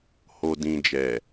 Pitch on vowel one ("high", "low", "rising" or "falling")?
low